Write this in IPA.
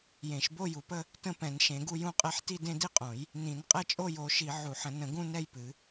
j ẽ˨˩˦ ʃ b o˥˧ j u˨˩˦ p ə˥˧ | t ə̃˥˧ p ɛ̃˨˩˦ n ʃ ẽ˨˩˦ ɡ u˥˧ j ũ˥˧ qʼ ɛ˥˧ ħ t i˥˧ d ẽ˥˧ d i˥˧ qʼ õ˨˩˦ j | n ĩ˨˩˦ n qʼ ɛ˥˧ t͡ʃʼ o˥˧ j o˨˩˦ ʃ i˨˩˦ ʕ u˨˩˦ ħ ə̃˨˩˦ n ə̃˨˩˦ ɡ ũ˥˧ n ɛ˥˧ j p ɨ˨˩˦

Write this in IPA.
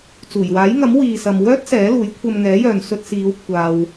t͡s uː˨˩ j w aː˨˥ j ŋ ɐ˨˥ m w iː˨ s ɐ˨ m w œː˥ t̚ s ɛː˨˥ l uː˨˥ j kʷʰ ɐ˧ m ŋ ɛː˨˥ j œː˨ n s ɵ˧ t̚ s iː˨˧ w kʷʰ aː˨ w

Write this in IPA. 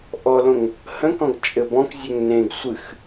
ʔ ɔ l õ ŋ | h ə̃ k ɔ̃ ɡ t͡ʃʼ ɘ b ɔ̃ k zʲ ø ŋ n ẽ ɡ sʷ ɨ x

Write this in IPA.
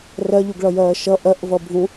r ɜ ʎ u ɡ ɭ ʌ j ɜː ʃ ʌ ʔ ɜ ʔ v ʌ bʱ ũ

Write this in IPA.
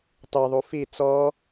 tˤ i ðˤ u f i t͡s ɔ

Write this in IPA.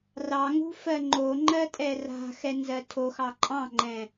r ɑ ŋ ṳ f ɜ ŋ͡ǃ o ŋ͡ǃ ɜ tʼ ɛ r a̤ x ɛ n z ɜ tʰ o x ɑ ǃʼ ɑ̃ ŋ͡ǃ ɛ̃

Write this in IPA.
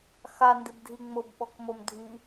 x a n d ɪ b dʱ i ŋ͡m ʊ b ɓ ɔ k m o m dʱ i

